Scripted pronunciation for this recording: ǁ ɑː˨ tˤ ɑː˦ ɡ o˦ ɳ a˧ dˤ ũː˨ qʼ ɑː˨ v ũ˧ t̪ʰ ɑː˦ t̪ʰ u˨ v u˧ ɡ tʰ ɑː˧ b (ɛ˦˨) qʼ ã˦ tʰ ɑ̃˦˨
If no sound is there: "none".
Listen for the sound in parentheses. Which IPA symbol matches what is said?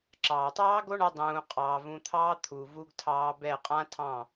ɛ˦˨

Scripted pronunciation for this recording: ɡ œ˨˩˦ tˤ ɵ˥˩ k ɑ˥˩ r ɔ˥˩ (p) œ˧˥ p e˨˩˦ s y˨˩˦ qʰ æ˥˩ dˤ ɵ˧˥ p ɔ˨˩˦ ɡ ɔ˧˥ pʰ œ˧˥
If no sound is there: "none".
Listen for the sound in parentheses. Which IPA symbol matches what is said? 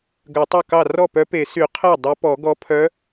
p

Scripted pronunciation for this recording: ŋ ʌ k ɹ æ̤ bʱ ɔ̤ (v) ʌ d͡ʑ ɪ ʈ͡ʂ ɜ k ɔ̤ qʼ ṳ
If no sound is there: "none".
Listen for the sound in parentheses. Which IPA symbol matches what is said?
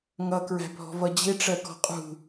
v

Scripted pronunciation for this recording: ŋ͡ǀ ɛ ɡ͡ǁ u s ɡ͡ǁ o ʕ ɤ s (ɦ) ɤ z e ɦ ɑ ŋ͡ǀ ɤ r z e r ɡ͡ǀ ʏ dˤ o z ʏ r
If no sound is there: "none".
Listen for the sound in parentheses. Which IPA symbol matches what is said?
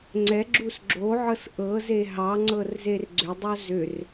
ʔ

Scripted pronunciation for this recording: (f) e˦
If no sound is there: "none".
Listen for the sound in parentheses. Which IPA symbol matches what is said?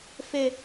f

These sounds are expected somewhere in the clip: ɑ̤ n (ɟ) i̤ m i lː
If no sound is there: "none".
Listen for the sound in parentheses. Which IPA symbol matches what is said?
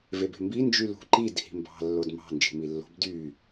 d͡ʒ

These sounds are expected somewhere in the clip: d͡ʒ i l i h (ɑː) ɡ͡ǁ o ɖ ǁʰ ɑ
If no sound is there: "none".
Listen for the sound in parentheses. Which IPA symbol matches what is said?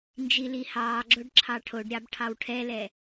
ɑː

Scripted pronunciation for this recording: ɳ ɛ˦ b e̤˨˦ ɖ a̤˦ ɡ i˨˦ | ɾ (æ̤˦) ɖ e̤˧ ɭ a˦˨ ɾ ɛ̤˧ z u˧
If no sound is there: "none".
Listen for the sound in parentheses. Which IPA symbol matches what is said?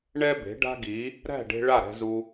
æ̤˦˨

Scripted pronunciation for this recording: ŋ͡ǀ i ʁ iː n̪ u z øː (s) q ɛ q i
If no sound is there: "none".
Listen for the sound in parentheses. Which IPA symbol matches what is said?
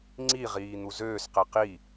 s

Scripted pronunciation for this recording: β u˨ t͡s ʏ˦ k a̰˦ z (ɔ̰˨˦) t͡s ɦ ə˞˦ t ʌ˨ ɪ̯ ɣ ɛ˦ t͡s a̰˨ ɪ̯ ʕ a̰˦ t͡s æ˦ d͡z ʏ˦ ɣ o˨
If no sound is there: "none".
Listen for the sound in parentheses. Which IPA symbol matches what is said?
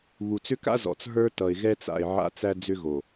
ɔ̰˨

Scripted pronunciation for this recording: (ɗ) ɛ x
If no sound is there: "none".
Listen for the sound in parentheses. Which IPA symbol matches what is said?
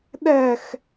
ɗ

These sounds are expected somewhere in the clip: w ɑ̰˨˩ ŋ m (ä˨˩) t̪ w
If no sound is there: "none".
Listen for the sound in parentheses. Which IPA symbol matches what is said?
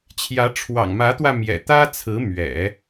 ä˧˥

